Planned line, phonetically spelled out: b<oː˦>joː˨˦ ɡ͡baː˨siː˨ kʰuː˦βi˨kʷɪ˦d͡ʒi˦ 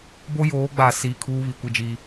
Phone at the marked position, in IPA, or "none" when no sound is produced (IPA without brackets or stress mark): o˦